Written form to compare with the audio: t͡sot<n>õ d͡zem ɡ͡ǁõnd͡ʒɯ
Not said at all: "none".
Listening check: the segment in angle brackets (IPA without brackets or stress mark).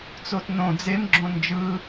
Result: n